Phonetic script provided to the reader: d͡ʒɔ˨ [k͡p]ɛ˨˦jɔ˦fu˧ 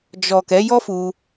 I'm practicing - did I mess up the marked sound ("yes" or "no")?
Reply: yes